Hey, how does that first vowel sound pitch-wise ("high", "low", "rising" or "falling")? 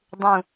falling